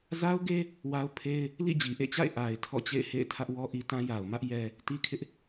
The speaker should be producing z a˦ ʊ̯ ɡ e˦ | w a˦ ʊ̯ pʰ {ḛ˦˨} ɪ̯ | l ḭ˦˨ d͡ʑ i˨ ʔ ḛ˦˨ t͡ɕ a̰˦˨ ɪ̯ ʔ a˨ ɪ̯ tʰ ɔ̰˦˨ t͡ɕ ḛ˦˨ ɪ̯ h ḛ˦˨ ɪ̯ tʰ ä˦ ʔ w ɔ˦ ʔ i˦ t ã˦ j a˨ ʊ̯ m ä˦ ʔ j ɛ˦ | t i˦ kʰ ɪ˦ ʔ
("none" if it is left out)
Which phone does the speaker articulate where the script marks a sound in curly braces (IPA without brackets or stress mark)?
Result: e˦